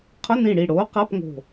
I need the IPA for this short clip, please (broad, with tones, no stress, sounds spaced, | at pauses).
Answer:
qʰ ʊ˧˥˧ n ĩ˧˩ ɽ i˧˩ ɽ oː˨˥ q a˧˥˧ p ŋ o̤˧˩